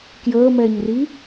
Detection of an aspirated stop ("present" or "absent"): absent